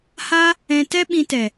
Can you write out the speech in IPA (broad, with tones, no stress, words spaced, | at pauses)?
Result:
ha˦ | ɛ̃˧tɛ˦ɓĩ˧ tɛ˨